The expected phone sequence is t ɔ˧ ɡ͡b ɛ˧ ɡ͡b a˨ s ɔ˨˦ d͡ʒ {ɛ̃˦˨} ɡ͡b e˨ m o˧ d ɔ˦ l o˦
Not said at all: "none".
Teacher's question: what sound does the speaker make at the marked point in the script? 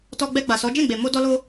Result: ɛ̃˦˨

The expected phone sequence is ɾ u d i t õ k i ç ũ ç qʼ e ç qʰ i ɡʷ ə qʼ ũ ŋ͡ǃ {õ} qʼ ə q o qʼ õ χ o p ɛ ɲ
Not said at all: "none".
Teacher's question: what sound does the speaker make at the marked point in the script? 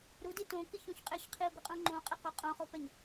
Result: õ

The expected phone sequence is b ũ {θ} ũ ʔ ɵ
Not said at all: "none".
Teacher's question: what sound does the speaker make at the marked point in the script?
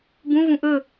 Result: v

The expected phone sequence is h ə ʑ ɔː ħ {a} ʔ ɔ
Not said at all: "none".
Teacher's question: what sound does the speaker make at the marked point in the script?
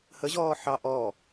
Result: ɑ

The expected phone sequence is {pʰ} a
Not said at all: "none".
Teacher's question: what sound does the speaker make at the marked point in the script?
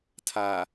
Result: tʰ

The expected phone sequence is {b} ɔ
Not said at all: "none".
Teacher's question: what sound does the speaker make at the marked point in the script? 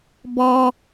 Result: b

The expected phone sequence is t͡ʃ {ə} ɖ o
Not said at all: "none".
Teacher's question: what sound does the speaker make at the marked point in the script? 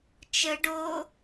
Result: ə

